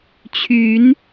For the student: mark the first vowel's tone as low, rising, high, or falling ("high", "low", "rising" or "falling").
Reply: rising